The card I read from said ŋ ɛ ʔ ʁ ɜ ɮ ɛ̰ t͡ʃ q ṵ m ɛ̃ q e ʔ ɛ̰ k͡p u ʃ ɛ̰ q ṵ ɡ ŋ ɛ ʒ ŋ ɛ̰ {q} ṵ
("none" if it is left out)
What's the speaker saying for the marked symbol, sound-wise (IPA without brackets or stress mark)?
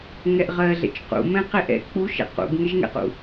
q